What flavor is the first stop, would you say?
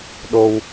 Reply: implosive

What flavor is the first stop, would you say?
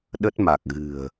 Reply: implosive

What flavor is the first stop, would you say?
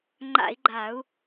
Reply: click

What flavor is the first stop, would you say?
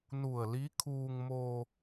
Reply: aspirated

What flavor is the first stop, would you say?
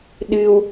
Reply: implosive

